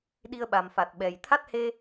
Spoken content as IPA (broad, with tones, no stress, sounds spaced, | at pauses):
ɗ i˧ ə̯ ɓ a˨˩ m f a˨˩ t̚ ɓ ɛ˨˩ j t̪ʰ a˦˥ t̚ h e˧